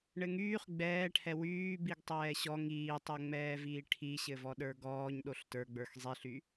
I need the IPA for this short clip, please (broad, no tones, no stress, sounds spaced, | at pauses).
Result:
ɳ ɘ ŋ yː χ ɡ͡b ɛː ʈʰ ɛ w yː b i ɡ tˤ ɛː ɕ ɔ ŋ iː tˤ o ŋ͡m ɛː v iː ʈʰ i ɕ ɘ v ɔ ɗ ə˞ ɡ ɔː ɲ ɗ o ɬ t ə˞ ɡ͡b ə˞ x zˤ i ɬ y